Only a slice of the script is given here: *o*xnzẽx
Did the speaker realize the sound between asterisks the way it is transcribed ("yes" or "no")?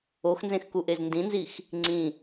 yes